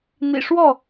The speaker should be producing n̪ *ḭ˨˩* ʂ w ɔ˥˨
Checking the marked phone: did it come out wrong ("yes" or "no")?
no